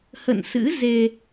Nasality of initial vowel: oral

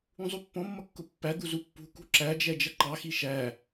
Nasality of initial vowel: nasal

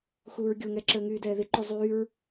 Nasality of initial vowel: oral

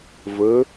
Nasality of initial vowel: oral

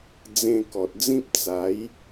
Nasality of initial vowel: nasal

